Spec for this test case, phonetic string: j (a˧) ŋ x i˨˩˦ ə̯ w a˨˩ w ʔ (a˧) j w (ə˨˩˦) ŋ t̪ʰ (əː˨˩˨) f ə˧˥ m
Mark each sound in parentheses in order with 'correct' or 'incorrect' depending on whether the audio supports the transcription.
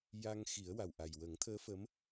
correct, incorrect: a˨˩, correct, incorrect: əː˧˥

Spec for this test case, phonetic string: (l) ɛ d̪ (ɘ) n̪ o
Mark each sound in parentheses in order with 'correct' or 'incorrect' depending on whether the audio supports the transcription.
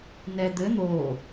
incorrect: n, correct

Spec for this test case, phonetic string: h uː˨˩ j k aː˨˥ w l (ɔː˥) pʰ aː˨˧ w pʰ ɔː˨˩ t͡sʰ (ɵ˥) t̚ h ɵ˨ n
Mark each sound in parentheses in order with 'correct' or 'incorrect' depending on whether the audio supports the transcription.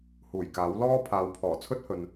correct, correct

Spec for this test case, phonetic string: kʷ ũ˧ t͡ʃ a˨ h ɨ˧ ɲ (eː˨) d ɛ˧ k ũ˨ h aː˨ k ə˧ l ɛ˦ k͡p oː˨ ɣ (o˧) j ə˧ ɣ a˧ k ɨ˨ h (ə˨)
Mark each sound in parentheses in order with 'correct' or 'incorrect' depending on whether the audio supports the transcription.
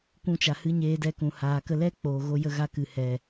incorrect: eː˧, correct, incorrect: ɛ˨

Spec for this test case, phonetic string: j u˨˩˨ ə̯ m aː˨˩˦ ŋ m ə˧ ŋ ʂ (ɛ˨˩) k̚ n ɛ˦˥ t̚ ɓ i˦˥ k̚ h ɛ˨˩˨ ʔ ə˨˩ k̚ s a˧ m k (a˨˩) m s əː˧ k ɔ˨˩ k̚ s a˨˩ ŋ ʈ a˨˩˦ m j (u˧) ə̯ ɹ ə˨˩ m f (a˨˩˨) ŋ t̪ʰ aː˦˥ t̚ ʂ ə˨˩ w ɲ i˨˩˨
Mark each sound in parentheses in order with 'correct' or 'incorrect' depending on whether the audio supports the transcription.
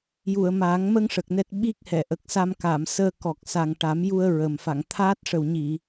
incorrect: ə˨˩, incorrect: a˨˩˨, correct, correct

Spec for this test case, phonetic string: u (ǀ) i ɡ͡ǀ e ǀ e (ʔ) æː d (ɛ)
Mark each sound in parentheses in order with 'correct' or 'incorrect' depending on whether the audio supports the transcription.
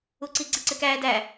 correct, incorrect: k, incorrect: æ

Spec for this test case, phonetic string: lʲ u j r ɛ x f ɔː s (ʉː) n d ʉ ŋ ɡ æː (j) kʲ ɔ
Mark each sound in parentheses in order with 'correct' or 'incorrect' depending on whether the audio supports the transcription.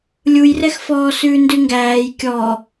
correct, correct

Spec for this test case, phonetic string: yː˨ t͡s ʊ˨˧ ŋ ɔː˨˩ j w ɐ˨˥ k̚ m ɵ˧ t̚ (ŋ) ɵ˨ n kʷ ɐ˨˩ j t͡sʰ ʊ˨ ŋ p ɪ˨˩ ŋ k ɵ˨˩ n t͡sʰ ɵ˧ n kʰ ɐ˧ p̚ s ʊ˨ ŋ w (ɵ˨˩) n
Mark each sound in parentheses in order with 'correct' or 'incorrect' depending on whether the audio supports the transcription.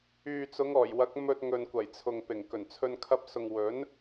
correct, incorrect: ɵ˨˥

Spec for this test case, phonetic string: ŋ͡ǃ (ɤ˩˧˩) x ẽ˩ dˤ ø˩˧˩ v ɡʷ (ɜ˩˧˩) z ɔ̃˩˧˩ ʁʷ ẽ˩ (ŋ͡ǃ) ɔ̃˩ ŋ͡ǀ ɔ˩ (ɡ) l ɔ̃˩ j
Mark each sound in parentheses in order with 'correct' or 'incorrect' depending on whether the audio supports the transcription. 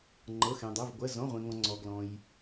correct, correct, incorrect: ŋ, correct

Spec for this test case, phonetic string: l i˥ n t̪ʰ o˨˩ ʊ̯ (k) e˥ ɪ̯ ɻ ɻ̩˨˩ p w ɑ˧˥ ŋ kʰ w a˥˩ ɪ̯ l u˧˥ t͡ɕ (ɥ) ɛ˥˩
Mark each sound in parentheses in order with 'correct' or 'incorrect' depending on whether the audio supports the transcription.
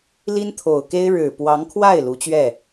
correct, correct

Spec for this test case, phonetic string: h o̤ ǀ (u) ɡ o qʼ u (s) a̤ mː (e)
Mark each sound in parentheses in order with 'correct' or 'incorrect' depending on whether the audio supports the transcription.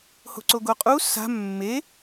incorrect: o, correct, correct

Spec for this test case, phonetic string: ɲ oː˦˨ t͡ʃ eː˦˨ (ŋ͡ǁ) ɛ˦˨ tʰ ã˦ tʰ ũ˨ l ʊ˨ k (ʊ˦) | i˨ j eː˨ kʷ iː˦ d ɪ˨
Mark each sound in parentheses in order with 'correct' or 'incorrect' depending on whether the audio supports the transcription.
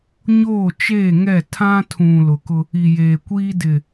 incorrect: ŋ, correct

